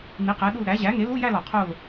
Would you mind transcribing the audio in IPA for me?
n i˩˥ q æ˩˥ ɗ u˦˨ l ɾ æ˩˥ ʑ æ˩˥ ŋ e˩˥ l u˧˥˧ j æ˦˨ l ɒ˨˩ qʰ o˦˨ l

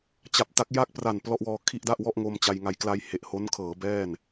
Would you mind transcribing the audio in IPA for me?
t͡ɕ a˨˩ p̚ t a˦˥ k̚ j a˥˩ k̚ p r a˨˩ n p l ɔ˥˩ ʔ w ɔː˧ kʰ i˥˩ ʔ d a˥˩ ʔ w ɔ˥˩ ʔ ŋ o˧ m t͡ɕ a˧ j ŋ a˧ j k l a˧ j h e˨˩ ʔ h o˦˥ n kʰ ɤː˩˦ b ɛː˥˩ n

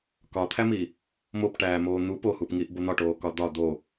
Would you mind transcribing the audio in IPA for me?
k ɒ t̪ʰ æ m i | m o p ʈ æː m oː n̪ u p o h u p ŋ i ʔ b o n̪ ɒ ʈ oː k ɒ d̪ ɒ d̪ o

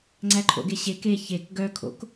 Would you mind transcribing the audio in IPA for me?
ŋ͡ǀ æ ǃʰ o̰ ɡ e ɕ e k e ç e k ɡ œ kʰ o̰ k

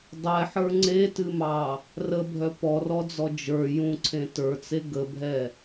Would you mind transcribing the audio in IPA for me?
dˤ ɛ ħ ə˞ ŋ͡ǀ e t ɨ m ɑ | r ə bʱ œ p ɔ r ɔ d͡z ɔ d͡ʒ ə˞ j ũ ǀʰ ẽ t ə˞ t͡s e ɡ ə bʱ ɛ

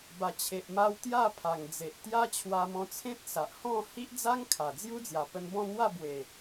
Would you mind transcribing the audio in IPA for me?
b a˨˩ t͡ɕʰ e˨ ʔ m a˧ w t̪ j a˥˧ pʰ a˨˩ ŋ d͡z e˨ ʔ t̪ j a˦ t͡ɕʰ w a˧ m ɔ̃˧ t͡sʰ ẽ˦ t̚ s a˨ ʔ h ɔ̃˥˧ h i˦ ʔ d͡z a˦ ŋ kʰ a˨˩ d͡z j u˦ d͡z j a˨˩ p ə˧ n b ɔ̃˥˧ n̪ w a˥˧ b w e˨˩

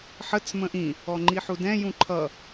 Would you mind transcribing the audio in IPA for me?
ħ ə t͡s m ə̃ ʔ ĩ | ɔ ŋ͡ǃ i ħ u d ɛ̃ j ũ ǃʰ ʌ

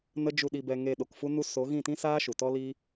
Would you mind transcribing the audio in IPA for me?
n ə˦ d͡ʒ u˧ ɗ i˧ b ɛ˧ ŋ e˧ ɗ o˨ k f u˦ n u˦ s o˨˦ ɣ ĩ˦˨ t ĩ˦ s aː˦ ʃ u˨ t ɔ˦ l i˦

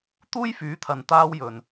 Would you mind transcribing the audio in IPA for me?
t̪ uː˥ j f yː˨˥ t̪ʰ ɐ˨ n t̪ aː˥ w j ɵ˧ n

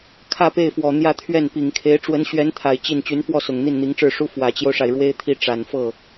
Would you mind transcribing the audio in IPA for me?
kʰ ä˥˧ p e˥˩ ɪ̯ f w ɔ˨˩ n̪ j ä˥˧ t̪ʰ ɥ ɛ˥˩ n p i˨˩ ŋ kʰ e˧˥ ɪ̯ ʈ͡ʂ w ə˧˥ n ɕ ɥ ɛ˧˥ n t̪ʰ a˨˩ ɪ̯ t͡ɕ i˥˩ n t͡ɕ y˧˥ n f w ɔ˥˩ s ʊ˨˩ ŋ n̪ i˥˩ n n̪ i˧˥ ŋ ʈ͡ʂ ɻ̩˥˩ ʂ u˥ f w ä˨˩ t͡ɕ j o˦ ʊ̯ ʂ a˩ ɪ̯ ɻ w e˥ ɪ̯ t̪ʰ i˥˩ ʈ͡ʂ a˨˩ n f ɤ˥˩

